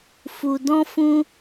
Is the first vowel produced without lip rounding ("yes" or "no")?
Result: no